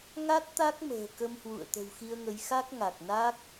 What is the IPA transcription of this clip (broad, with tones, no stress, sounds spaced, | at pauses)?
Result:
ŋ a˦˥ t̚ t̪ a˦˥ k̚ m ə̤ː˨˩ k ə˧ m h w ṵ˧˨ ə̯ t̪ ə̤˨˩ w x i˧ ə̯ ŋ ə˨˦ j x a˦˥ k̚ ŋ a˨˩ k̚ n a˦˥ k̚